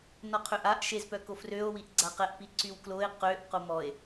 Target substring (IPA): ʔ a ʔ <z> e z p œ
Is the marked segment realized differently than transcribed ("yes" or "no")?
yes